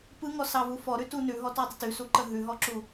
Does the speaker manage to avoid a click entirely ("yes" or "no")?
no